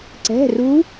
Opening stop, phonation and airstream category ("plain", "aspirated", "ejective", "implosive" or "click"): click